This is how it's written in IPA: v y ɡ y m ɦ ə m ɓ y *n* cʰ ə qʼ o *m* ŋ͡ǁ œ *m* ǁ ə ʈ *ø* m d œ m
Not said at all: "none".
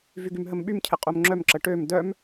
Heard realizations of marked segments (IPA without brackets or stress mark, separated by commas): m, m, m, ø